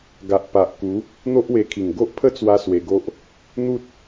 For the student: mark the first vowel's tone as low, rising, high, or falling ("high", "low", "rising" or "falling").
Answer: low